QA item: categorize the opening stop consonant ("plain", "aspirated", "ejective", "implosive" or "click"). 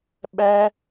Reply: implosive